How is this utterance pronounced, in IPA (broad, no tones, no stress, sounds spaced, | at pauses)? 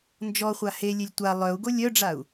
n d͡ʒ ɔ χʷ a h e lʲ e lʲ tʷ a lˠ œ u̯ ɡ o lʲ œ ɖ͡ʐ a u̯